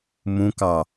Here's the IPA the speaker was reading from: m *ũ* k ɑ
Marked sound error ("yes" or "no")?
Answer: no